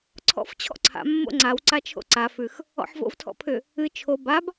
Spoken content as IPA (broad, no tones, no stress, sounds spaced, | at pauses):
ǀʰ ɔ̰ f t͡ɕʰ ɔ̰ ǀʰ a̰ mː o̰ ŋ͡ǀ a w ǀ a t͡ʃʰ o̰ ǀ a f ʉ x | ɔ̰ ħ v o̰ v tʰ ɔ̰ pʰ ʏ | ɨ t͡ʃʰ o b a b